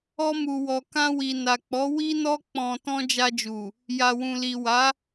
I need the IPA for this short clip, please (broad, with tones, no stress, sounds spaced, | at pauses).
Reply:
ɔ˧ m u˨ w ɔ˨ k ã˧ w i˨ n a˨ k͡p ɔ˨˦ w i˦ n ɔ˦ k͡p ɔ̃˧ t ɔ̃˦ d͡ʒ a˧ d͡ʒ u˨ | j a˨ w ũ˨ l i˨ w a˨˦